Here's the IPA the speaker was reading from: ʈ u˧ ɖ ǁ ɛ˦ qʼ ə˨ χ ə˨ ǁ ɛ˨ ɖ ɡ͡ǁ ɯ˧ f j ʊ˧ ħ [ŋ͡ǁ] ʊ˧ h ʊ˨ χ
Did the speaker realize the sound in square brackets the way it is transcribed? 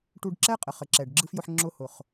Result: yes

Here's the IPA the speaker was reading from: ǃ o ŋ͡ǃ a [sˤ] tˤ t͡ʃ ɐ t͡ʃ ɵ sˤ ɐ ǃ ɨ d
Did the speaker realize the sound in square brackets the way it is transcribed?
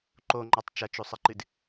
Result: no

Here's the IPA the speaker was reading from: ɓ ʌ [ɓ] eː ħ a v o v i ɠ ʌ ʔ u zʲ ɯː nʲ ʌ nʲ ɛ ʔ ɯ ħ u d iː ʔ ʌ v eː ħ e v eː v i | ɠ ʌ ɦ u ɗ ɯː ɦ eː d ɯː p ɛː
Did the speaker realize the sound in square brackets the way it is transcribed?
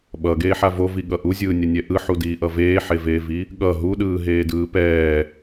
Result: no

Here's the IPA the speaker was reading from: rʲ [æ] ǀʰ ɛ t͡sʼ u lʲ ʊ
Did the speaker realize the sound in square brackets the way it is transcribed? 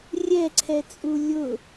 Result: no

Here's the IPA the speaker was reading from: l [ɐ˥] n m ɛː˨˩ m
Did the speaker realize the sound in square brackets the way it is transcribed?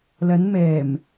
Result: no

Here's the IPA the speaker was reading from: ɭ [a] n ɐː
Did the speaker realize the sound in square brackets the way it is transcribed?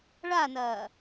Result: yes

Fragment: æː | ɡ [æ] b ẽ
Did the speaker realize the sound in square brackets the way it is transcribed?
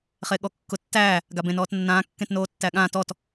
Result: no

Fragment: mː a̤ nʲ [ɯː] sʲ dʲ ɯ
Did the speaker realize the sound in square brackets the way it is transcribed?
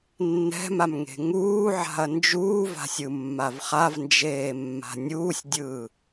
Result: no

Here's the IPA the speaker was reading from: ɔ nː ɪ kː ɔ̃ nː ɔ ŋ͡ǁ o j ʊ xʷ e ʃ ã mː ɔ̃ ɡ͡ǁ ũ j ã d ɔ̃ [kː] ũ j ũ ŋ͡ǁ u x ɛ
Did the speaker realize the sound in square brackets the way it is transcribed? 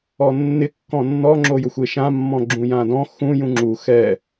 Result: no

